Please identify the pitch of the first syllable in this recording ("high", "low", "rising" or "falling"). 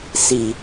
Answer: low